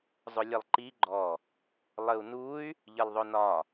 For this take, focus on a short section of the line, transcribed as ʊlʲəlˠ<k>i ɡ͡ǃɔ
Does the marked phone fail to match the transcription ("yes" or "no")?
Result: yes